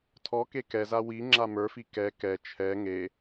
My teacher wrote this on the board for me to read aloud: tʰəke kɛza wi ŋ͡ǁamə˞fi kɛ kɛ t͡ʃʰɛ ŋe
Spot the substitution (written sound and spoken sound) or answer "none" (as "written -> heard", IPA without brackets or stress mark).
ə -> ɔ